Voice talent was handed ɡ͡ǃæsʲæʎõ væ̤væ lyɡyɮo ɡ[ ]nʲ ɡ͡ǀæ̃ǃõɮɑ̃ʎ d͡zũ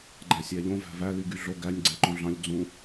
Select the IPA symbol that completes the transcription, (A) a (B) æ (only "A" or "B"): B